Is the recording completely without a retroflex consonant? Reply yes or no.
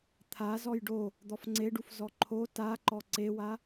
no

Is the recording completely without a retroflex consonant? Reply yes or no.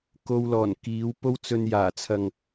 yes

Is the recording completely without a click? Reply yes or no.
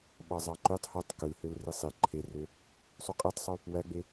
no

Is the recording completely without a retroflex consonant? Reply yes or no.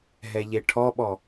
no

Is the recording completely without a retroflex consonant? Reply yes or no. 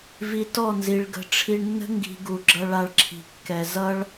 no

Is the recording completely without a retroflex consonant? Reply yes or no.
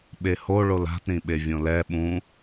no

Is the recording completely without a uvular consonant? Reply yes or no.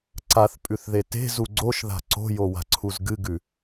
yes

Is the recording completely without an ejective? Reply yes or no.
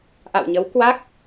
yes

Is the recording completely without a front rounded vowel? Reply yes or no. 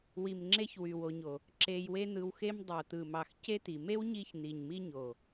no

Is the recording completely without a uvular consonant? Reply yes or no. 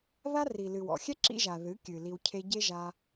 yes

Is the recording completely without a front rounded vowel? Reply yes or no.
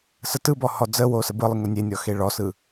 yes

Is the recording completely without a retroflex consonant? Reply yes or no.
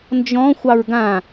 yes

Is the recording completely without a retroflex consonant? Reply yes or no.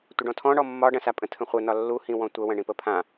no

